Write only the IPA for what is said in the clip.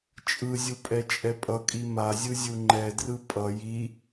t͡ʃʼɯzʲu pʼɛt͡ʃʼɛpʼʌkʼi mazʲɯ zʲuŋ͡ǃɛdrɯ pʼʌ ji

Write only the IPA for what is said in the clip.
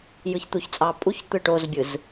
jɯçt̪uçt͡sʼɑ pʼuç t̪ɯʈozbʲɯz

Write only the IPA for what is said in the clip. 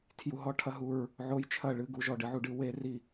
tʰju˨ɦɔ˧˥˧ʈʰɐ˦˨ ɦu˦˨ɹ | ʕo˧˥jt͡ʃʰɐ˦˨ ɭɨ˧˥˧ɡu˧˥˧ʒɔ˦˨ ɖɨ˧˥ʕu˨˩˦ɖɨ˨˩˦ we˧˥ri˦˨

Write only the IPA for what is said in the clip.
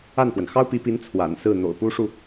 a˥˩nxwə˩n xɑ˥ʊ̯pi˧˥pi˧˥n t͡sʰwa̰˨˩nsɹ̩˥˩ n̪o̰˨˩ʊ̯pu˥ʂu˨

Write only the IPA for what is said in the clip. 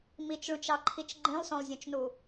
mit͡ʃɭũt͡ʃɑǃʰit͡ʃ ɡ͡ǃĩlˠsõlˠzʲõt͡ʃnu

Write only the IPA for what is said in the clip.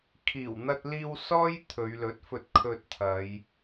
kʰiː˨˩wn̪ɐ˧t̚liː˧w sɔː˥j t̪ʰɵ˨˧ɥlɵ˨˥t̚fɵ˧t̚ kʰɵ˧t̚t̪ʰɐ˨˧j

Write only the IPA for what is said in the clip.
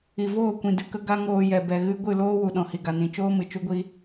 i˨voː˦˨kʷĩ˨ dɨ˨kə˧ ɡa˦ŋoː˧ jɛ˨bɛ˨ɣɨ˧ ɡʷɨ˦˨loː˦ wu˨ɗɔ̃˨hi˨ɡa˨ nĩ˨t͡ʃoː˦ mɨ˨t͡ʃu˦ɡʷi˦

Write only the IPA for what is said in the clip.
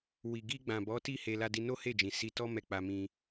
wi˨ɡi˧ɡ͡bã˨ bɔ˨˦ti˦˨ he˧la˧di˧ no˦he˦˨d͡ʒĩ˨ si˧tɔ˦ mɛ˦˨k͡pa˧mĩ˧

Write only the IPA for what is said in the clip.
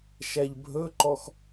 ʃæʎbʱɵǃɔx

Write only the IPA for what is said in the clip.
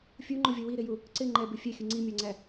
fʲuŋ͡ǃʊvʲʌ wiɾɪju | ǀɪ ŋ͡ǃɛbɪ fʲɛxʲə ŋ͡ǀimʲɑŋ͡ǀæ

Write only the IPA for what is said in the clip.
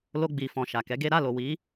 lo˧ɡ͡bi˨fɔ̃˨ ʃa˨kɛ˨˦ɡe˦ ɾa˦˨lo˨ wi˨˦

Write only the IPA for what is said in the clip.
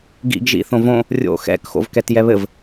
ɡḭɡ ʒḭθõvõ | rʲo̰xɛ̰k xo̰vkɛtjɛβɘv

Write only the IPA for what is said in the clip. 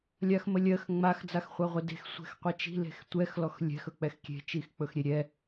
lʲaxməlʲɜx ŋ͡max d͡zaxχʷaʁʷede̤x sʷɛ̤xqʷɛt͡ʃi̤ le̤xtʷɛx lɔxlʲɛ̤x ɵk͡pɛxkʲe̤ t͡ʃixk͡pɵxɾʲeɾʲɛ

